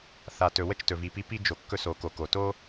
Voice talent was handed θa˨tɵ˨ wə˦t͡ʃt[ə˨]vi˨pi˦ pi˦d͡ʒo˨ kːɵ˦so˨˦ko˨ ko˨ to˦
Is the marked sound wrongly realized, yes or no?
yes